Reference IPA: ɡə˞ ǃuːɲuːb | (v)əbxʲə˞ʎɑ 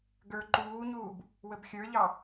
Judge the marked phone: incorrect: w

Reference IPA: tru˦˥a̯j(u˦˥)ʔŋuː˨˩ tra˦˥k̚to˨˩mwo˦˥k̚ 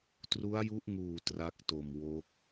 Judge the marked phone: correct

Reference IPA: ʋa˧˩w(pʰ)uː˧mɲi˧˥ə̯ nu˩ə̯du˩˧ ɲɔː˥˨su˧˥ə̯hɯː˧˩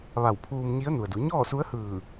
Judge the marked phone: correct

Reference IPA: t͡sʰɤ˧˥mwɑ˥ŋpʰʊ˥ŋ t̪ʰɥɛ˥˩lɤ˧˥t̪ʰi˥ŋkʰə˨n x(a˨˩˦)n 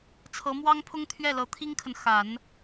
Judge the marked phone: correct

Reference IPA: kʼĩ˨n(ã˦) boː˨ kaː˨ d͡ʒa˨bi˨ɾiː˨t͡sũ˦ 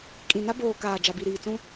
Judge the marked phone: incorrect: a˦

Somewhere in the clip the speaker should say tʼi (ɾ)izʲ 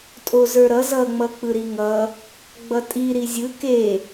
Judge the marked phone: correct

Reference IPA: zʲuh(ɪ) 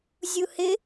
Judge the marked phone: correct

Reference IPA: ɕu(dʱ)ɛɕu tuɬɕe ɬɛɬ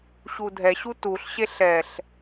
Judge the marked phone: correct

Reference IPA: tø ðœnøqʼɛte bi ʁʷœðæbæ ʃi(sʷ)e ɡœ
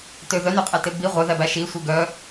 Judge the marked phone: correct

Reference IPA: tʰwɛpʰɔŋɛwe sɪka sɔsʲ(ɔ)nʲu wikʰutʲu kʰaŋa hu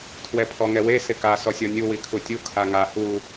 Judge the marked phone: correct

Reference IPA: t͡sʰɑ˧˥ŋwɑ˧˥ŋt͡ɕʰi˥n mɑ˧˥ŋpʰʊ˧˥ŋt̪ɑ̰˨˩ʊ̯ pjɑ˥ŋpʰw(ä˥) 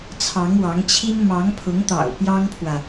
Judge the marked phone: incorrect: ä˨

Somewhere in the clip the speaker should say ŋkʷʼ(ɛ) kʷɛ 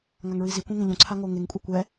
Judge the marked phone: incorrect: e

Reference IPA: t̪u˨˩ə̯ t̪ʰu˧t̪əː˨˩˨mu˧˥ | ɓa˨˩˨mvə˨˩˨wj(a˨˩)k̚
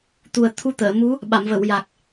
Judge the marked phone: correct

